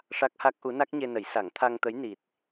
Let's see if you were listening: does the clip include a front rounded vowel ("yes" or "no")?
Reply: no